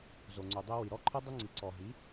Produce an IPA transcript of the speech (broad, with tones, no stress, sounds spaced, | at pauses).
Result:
z o˨ ŋ͡ǀ u˨ dˤ ɛ˧ w i˨ ɾ ɔ˧ ǃʰ ɤ˧ dˤ u˧ ŋ͡ǀ i˨ ǀ ɔ˨ ɦ i˨˦